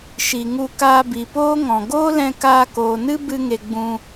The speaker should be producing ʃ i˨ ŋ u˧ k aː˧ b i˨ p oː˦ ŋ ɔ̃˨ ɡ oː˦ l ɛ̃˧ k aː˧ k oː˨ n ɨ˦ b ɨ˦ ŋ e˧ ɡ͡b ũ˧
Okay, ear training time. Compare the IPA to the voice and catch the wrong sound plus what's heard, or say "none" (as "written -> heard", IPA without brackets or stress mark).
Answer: none